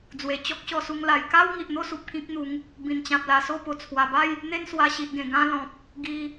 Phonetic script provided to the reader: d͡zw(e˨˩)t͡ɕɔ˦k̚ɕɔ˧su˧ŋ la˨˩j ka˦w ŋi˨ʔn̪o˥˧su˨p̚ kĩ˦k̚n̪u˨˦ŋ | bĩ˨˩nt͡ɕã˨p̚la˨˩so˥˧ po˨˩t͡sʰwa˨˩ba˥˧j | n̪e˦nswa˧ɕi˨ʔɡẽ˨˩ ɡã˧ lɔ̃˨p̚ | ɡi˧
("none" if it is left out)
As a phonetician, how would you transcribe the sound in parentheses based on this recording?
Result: e˨˩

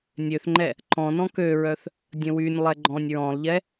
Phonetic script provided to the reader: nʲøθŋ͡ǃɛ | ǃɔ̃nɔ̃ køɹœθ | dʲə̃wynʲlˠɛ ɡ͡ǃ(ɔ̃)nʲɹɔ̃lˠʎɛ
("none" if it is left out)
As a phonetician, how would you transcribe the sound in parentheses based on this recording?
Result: ɔ̃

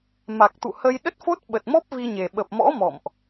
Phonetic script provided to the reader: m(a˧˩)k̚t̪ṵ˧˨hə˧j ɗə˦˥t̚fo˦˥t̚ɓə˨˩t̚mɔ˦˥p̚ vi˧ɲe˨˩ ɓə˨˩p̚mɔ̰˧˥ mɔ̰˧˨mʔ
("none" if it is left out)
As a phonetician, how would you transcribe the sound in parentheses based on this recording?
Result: a˨˩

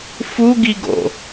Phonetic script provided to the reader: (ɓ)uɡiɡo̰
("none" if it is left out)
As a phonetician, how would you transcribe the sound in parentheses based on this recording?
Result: f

